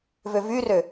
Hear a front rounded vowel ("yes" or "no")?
yes